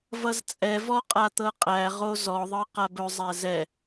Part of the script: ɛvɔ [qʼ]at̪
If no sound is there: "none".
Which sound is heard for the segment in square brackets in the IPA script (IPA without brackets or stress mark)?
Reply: qʼ